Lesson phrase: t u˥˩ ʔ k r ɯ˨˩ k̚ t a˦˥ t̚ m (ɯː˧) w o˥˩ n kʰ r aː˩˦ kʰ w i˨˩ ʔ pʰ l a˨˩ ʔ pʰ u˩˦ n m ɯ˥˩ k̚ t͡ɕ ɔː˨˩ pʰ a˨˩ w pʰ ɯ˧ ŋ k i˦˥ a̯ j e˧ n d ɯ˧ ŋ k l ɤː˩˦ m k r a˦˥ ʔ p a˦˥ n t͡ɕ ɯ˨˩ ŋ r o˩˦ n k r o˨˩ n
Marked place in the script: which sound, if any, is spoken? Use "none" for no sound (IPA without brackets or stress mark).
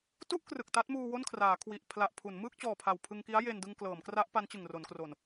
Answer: uː˧